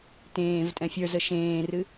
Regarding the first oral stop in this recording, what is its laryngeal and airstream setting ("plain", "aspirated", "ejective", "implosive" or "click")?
plain